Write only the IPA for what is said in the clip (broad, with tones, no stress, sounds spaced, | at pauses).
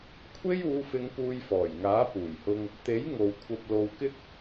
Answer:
kʷʰ e˥ j uː˨˧ f ɪ˨˧ ŋ p uː˧ j f ɔː˨˩ j ŋ aː˨˥ p uː˨˩ j h ʊ˧ ŋ | t̪ e˨˥ j ŋ o˨ w kʷʰ ɐ˧ p̚ l o˨ w k ɪ˥ k̚